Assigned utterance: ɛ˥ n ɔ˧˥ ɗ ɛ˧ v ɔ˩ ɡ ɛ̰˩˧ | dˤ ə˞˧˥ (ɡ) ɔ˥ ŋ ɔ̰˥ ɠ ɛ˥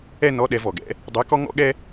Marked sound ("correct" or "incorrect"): incorrect